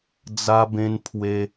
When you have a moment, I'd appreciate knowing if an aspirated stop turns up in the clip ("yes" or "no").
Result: yes